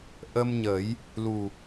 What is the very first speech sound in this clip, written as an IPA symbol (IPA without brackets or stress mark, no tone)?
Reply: ʔ